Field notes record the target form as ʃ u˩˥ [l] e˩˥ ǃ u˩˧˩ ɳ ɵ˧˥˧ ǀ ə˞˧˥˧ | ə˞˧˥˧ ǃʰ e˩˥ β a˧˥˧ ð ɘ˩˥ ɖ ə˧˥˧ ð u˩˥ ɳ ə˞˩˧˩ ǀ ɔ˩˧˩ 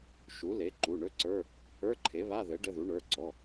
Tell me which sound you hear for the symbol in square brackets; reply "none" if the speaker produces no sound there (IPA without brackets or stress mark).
l